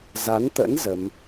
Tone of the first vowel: rising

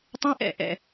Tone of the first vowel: high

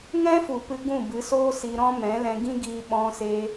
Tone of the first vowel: high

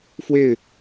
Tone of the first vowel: falling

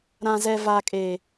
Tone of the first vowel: low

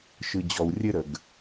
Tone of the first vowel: low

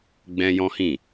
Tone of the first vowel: high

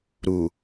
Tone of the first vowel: low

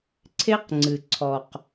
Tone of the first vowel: high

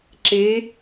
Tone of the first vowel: rising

